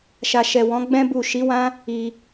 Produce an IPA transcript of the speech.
ʃ a˨ ʃ ɛ˨ w ɔ̃˨˦ ɡ͡b ɛ̃˦ b u˦˨ ʃ i˨˦ w ã˦ | i˧

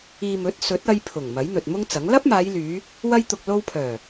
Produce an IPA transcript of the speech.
iː˨ m ɵ˨˥ t̚ s ɵ˨˥ t̚ ɐ˧ j pʰ ʊ˨˩ ŋ m ɐ˨˥ j n̪ ɵ˨ t̚ m ʊ˥ ŋ t͡s ɐ˨˥ ŋ l ɐ˥ p̚ m aː˨˧ j l yː˨˧ | w ɐ˧ j t̪ ʊ˨ k̚ l o˧ w pʰ œː˨˩

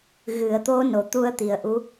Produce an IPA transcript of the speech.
ɣ ɨ˨˩˨ ə̯ t̪ o˧˥ n o˨˩˨ t̪ u˧ ə̯ t̪ i˨˩ ə̯ ʔ u˧˥

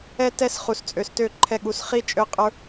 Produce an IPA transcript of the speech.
ɛ˧ t ɛ˧ s χ u˨ s t͡sʼ ø˨ s t ø˦˨ ǃʰ ɛ˧ ɠ u˨˦ s χ i˦ t͡ʃʼ ø˦ qʼ ə˞˦

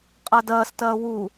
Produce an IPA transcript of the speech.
qʼ ɐ d ɐː s t ɐː w u

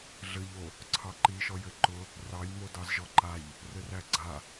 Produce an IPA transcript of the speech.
ɮ ɘ ʎ o | ǀʰ ɑ ǃ i ʃ ɔ j ɘ ǃ ʊ | r ɑ j m o d ɑ z ʒ ɔ ǃ a ʎ | r ɘ r æ ɡ͡ǀ a

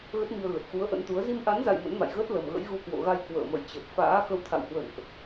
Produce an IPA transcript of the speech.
ɣ ə˦˥ t̚ m i˧ ə̯ ɣ ə˨˩ t̚ x u˨˦ ə̯ ʔ ə̰˧˥ n t̪ u˨˦ ə̯ z i˧ m ʔ a˨˦ n z a̰˧˨ j m ə̰˧˥ n m a̰˧˨ j ɣ əː˦˥ t̚ l ə˨˩ m ɣ ə̰˧˥ j ɣ u˧ k w o̰˧˨ ɣ a˧ j k w ə̰ː˧˨ m ə̰˧˨ j t͡ɕ ə˨˩ p̚ f a̰ː˧˥ x ə˧ w t̪ʰ a̰˧˨ w h w ə̰˧˨ n ʔ

